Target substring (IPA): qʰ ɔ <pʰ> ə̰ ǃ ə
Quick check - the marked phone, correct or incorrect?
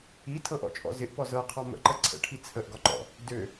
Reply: incorrect